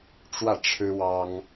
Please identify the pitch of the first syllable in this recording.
falling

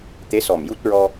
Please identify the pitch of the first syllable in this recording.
rising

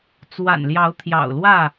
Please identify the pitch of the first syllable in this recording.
low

